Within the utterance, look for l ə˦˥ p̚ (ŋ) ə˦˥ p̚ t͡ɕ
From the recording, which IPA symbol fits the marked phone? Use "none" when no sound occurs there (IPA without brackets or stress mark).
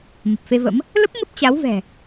ŋ